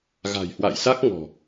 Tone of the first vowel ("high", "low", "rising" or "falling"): low